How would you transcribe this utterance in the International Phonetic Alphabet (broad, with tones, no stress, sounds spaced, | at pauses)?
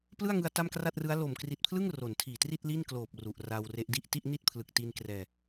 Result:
p l ɯ˥˩ a̯ ŋ ɯ˧ a̯ t a˥˩ m k r a˥˩ t̚ r ɯ˦˥ a̯ l o˨˩ m k r i˨˩ t̚ pʰ l ɯ˥˩ ŋ r o˩˦ n tʰ iː˨˩ t r i˥˩ t̚ l i˥˩ n k l oː˨˩ p̚ r u˨˩ ʔ r a˧ w r e˦˥ ʔ d i˥˩ ʔ t i˥˩ ʔ n i˥˩ t̚ pʰ l ɯ˨˩ k̚ t i˧ n k r ɛː˧